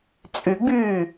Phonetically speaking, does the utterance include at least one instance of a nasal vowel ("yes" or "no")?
no